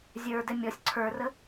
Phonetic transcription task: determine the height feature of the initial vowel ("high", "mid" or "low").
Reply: mid